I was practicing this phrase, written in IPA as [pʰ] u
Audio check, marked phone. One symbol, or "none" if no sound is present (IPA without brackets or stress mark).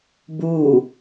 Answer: b